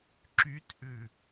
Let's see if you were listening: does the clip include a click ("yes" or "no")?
yes